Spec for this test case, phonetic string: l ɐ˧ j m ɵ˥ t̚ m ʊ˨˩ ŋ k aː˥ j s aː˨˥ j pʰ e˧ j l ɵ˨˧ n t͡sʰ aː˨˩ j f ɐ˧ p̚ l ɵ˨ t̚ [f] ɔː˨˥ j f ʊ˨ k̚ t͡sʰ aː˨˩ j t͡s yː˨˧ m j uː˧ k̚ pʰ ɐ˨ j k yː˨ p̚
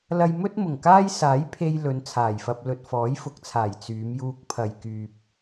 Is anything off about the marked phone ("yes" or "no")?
no